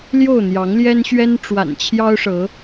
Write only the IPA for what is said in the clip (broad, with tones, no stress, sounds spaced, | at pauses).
l j o˥˨ ʊ̯ n̪ j ɑ˨˦ ŋ l j ɛ˦ n ɕ ɥ ɛ˦ n ʈ͡ʂ w a̰˨˩ n t͡ɕʰ j ɑ˦ ʊ̯ ʂ ɤ˨˦